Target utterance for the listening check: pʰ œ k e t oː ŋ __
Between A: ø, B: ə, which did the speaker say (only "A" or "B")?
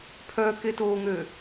A